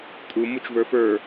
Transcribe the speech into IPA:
tʼu mut͡ʃvə˞fə˞

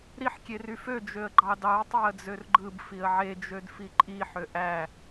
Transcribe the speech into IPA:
ɾiħ kʲeryfø d͡ʒøə̯ɡ͡ǃɑdɑə̯ tˤæə̯d͡zørɡ͡ǃɯb fiə̯ʕe d͡ʒødfiǃʼi ħøʔæ

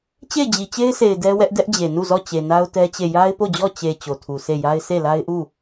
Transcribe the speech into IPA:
t͡ɕe˦˨ɪ̯d͡ʑi˨t͡ɕe˦ɪ̯sʰe˨ɪ̯ dɛ˦wɛ˦ʔ dɛ˦ʔd͡ʑe˨nu˦˨zɔ˦˨ t͡ɕe˨na˦ʊ̯tɛ˦t͡ɕe˦˨ ja˦ɪ̯po˦˨d͡ʑɔ˦˨ t͡ɕe˨ t͡ɕo˨tʰu˨ se˦˨ja˦ɪ̯ sʰe˦˨la˦ɪ̯ʔu˦˨

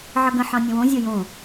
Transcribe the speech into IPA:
ʕʌɡə̃ ħɑ̃nʲə̃wõ zʲojõ

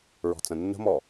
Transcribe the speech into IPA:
ɹɔ̤t͡sə̃nːə̤mɔ

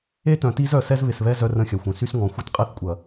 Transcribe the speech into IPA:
e˦tœ̃˨ti˦z œ˨ sɛ˦zβɪ˨sβɛ˦ zœ˦rə̃˦˨xʲœ˨xʷœ̃˨ sy˦sŋɔ̃˨ xʷɐ˦tqʼɛ˦θkʷʼɐ˨

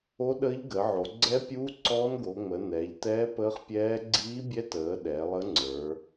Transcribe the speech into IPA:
o˦˥ɗəː˦˥ʎɡə˩˧ʕo˩˧ ɡ͡ǀɛ˦˥pʲuː˦˥ ǀɔː˦˥nɡo˩˧ŋ͡mə˩˧ nɛː˩˧ʎtɛː˦˥pəː˦˥χpʲɛː˦˥ ɡ͡ǀiː˦˥bʲɛ˦˥təː˩˧ ɗɛ˩˧lˠə˦˥ŋ͡ǀə˞˩˧

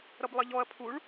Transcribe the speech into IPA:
ɾʌblˠəʎɔɐ̯ pʰuɭ

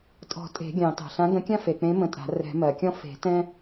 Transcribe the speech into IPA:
tʼɔ̤˨˩˦ tʼe̤˨˩˦ɡʲɑ̃˨˩˦ tɑ̤˩ɬã˨˥ɡə̃˨˥ kʲã˥fe˩k͡pẽ˨˥ mə̃˨˥tʼa̤˨˩˦ rɛ̤˨˩˦mɜ˩kʲɔ̃˥ fe̤˨˩˦ tɛ̃˥

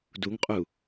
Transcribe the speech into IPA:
duŋqʼu

